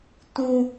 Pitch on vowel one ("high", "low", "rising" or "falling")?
high